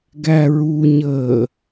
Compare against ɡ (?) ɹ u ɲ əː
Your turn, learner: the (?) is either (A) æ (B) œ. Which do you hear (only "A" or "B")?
A